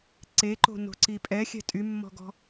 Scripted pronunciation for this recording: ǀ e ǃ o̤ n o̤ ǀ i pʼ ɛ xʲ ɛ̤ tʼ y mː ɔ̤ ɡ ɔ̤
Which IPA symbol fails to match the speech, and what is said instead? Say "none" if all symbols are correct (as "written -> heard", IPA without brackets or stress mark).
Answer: none